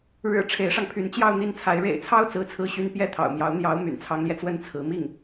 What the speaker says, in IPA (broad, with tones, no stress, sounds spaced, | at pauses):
ɻ ɻ̩˨˩ ʈ͡ʂʰ e˧˥ ɪ̯ ʂ ɑ˧ ŋ pʰ y˧˥ n t͡ɕ j ɑ˥˧ ʊ̯ n̪ i˥˩ n t͡sʰ a˧˥ ɪ̯ ɻ ḛ˨˩ ɪ̯ t͡sʰ ɑ˥ ʊ̯ t͡s ɹ̩˥ t͡sʰ ɹ̩˥ ɕ y˥ n p j ɛ˥˩ t̪ʰ ɑ̰˨˩ ʊ̯ m j ɑ˧˥ ʊ̯ n̪ j ɑ˧˥ ʊ̯ m y̰˨˩ n t͡sʰ ɑ˧˥ ŋ l j ɛ˧ t͡s w ə˥ n t͡sʰ ɹ̩˧˥ m i˥˩ ŋ